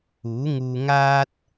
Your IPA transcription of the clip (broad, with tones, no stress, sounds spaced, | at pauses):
uː˨˥ ŋ uː˧ ŋ aː˥ t̚